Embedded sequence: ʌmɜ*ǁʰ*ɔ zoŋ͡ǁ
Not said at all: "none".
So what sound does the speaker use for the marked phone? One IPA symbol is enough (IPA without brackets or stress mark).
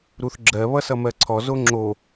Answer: ǀʰ